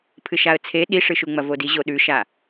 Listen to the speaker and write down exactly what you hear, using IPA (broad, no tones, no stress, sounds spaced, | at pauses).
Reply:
pʰ ɨ ʃ a ə̯ t͡sʰ e ɗ i ʂ ɨ ʃ u ŋ͡m ɐ v o d i ʑ o ɗ ʉ ʃ a